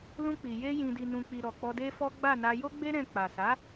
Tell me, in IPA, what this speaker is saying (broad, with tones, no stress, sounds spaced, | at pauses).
l ũ˧ k͡p i˨ j e˧ j ĩ˨ d i˨ n ũ˨ k͡p i˨ ɾ ɔ˨ k͡p ɔ˧ d e˦ f ɔ˦ ɡ͡b a˦˨ n a˧ j o˦ ɡ͡b e˦ ɾ ɛ̃˧ k͡p a˨ s a˨˦